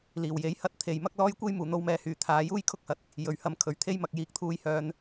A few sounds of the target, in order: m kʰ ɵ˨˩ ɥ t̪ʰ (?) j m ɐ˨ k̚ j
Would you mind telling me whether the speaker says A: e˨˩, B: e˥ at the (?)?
B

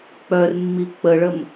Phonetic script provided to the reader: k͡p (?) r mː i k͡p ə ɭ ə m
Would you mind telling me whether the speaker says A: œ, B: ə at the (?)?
A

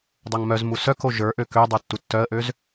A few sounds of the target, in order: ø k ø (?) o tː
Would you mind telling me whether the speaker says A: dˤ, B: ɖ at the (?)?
A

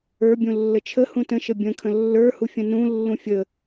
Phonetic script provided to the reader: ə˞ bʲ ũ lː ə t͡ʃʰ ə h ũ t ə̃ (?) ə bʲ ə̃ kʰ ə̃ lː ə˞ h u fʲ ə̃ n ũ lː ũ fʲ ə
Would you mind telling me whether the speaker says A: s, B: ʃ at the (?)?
B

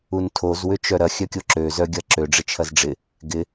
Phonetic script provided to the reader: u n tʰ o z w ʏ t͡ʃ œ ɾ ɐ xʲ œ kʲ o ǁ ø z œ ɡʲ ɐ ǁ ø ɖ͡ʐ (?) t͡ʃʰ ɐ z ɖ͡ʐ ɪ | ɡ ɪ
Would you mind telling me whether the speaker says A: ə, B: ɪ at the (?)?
B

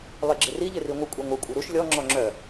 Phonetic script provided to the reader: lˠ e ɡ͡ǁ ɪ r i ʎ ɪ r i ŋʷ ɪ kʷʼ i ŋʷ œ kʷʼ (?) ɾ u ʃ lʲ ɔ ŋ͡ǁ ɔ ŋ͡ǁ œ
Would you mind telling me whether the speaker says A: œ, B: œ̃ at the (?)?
A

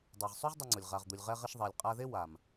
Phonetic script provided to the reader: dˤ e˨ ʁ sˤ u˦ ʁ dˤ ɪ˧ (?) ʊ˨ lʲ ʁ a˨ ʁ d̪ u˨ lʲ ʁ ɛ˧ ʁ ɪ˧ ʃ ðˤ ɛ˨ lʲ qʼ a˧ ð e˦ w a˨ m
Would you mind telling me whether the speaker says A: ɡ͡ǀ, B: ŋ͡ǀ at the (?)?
B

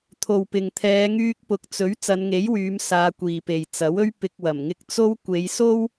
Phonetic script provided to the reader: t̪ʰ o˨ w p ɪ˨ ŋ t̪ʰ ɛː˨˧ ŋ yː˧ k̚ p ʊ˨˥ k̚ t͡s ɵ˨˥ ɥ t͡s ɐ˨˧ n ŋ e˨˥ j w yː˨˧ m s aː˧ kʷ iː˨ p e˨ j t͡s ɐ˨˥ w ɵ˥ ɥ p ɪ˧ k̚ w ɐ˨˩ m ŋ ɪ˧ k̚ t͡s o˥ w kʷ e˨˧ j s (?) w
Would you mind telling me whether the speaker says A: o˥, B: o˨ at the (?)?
A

